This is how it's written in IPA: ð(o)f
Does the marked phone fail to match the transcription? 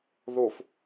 no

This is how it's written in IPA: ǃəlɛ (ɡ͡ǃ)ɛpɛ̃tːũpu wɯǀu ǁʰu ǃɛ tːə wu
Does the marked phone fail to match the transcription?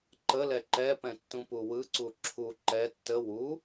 yes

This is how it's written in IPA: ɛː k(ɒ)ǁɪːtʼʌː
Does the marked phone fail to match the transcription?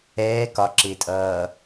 no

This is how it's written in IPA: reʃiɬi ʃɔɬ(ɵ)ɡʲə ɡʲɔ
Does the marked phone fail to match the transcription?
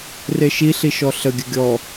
yes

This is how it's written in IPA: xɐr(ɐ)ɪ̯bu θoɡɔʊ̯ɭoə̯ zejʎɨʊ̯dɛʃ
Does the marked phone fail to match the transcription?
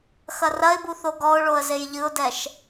no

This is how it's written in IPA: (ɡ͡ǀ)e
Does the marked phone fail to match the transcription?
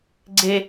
no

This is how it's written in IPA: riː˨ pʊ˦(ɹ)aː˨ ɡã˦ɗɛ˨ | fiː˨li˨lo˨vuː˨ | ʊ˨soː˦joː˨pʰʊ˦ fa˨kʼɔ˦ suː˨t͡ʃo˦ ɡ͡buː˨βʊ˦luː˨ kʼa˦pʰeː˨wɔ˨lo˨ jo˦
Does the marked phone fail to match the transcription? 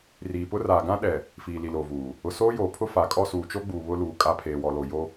yes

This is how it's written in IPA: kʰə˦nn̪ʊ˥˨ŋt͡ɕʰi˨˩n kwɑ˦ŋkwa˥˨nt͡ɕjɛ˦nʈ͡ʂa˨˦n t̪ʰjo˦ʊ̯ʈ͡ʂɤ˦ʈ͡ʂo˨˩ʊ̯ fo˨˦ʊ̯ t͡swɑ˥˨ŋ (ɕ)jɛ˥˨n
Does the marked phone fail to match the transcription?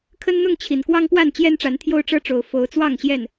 no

